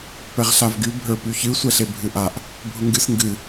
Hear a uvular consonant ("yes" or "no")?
yes